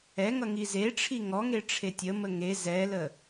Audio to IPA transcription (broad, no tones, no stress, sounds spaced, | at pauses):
ɛ ŋ ʌ ŋ i z e ʈ͡ʂʰ i ŋ ɔ ŋ e ʈ͡ʂʰ e tʲ ə m ə ŋ e z ɛ l ə